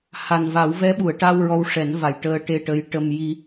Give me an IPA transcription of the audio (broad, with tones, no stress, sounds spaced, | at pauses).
h a˨˩ n v a˨˩˦ w v ɛ˧˥ ɓ u˨˩˨ ə̯ ʈ a˧ w ɹ ɔ˧ w ʂ ɛ˨˩˦ n v a˨˩ j ʈ əː˧ ʈ e˧ ʈ ə˧˥ j ʈ ə˧ m j i˧